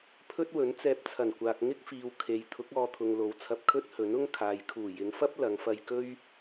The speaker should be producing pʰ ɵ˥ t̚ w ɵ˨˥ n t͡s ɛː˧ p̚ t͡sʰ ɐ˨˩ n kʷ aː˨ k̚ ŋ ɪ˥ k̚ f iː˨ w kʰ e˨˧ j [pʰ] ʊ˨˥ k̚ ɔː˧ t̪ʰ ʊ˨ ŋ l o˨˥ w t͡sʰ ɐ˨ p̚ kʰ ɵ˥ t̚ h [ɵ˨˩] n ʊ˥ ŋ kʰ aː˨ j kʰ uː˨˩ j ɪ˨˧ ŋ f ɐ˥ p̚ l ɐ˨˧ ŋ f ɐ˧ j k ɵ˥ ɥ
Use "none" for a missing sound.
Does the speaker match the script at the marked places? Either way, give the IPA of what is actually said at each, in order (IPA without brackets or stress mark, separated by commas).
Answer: t̪ʰ, ɵ˨˥